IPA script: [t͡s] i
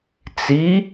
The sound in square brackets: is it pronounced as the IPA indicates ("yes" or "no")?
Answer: yes